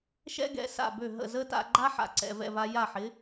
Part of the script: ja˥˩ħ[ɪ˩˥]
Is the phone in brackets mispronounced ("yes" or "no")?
no